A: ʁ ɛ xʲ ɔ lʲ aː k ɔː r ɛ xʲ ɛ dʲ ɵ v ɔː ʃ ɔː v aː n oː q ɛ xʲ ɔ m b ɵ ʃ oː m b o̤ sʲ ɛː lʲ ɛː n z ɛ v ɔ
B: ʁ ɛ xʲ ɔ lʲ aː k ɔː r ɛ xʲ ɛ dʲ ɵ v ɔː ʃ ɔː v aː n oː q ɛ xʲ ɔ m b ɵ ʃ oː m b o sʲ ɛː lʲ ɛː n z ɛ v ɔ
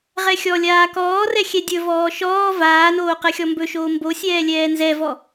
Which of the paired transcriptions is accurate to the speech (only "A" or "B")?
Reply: B